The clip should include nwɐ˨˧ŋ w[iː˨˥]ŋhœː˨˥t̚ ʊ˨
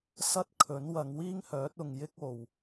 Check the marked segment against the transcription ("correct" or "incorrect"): incorrect